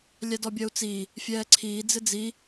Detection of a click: present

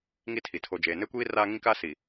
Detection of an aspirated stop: present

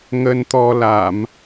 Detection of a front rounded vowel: absent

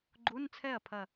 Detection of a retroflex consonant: absent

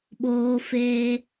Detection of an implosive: present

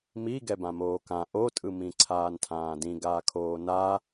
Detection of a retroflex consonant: absent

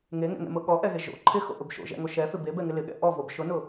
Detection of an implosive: present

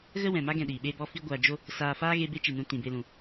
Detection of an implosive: present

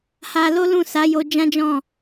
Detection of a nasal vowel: present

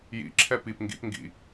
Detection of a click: present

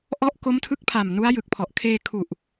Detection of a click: absent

